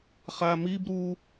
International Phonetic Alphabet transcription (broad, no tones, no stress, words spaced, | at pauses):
χamib ɾu